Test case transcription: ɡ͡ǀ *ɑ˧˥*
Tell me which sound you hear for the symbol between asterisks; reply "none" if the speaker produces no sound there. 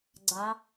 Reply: ɑ˧˥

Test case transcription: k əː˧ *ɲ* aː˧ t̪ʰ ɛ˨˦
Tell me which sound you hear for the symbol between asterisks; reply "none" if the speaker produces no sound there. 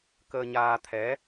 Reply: ɲ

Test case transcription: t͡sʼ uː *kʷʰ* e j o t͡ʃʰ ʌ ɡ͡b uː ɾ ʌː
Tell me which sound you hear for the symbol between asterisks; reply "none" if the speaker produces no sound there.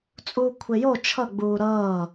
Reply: kʷʰ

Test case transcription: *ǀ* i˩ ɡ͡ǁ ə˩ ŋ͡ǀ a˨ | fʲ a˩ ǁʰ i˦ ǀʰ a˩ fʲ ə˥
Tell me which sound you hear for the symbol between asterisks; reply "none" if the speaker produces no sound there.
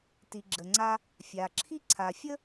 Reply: t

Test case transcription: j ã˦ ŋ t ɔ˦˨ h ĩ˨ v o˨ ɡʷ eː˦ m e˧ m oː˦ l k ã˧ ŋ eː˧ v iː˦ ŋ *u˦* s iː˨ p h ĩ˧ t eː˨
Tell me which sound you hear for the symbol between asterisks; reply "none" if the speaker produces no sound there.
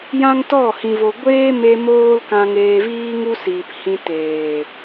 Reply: u˦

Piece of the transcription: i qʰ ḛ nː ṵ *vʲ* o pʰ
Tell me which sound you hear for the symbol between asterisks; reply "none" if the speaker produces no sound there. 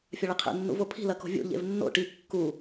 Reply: v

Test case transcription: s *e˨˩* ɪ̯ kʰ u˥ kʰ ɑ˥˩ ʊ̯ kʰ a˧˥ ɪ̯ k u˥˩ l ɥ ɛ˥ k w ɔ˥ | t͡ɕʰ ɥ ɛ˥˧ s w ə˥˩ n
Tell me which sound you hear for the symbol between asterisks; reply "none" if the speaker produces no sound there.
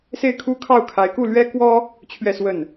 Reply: e˥˩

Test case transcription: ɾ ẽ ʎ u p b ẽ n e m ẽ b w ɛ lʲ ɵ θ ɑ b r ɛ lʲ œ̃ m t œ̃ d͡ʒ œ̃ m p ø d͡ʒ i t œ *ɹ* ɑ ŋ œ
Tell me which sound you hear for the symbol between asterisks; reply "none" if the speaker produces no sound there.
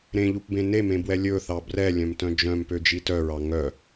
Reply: ɹ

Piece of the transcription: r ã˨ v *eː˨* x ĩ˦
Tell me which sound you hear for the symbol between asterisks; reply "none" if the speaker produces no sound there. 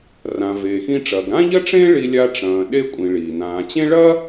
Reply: eː˨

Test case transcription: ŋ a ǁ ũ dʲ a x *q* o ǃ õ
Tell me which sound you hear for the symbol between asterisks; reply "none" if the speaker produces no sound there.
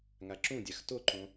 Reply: t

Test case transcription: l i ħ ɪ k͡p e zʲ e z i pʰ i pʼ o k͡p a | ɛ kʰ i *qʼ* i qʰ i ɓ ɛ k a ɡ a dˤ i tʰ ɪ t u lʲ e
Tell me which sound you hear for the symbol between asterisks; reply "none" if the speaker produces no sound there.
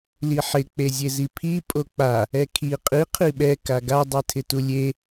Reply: qʼ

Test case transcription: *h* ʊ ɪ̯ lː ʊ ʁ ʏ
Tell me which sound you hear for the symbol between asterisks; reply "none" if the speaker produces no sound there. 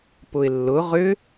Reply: p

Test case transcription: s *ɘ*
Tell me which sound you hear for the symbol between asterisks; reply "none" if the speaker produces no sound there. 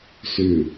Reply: ʉ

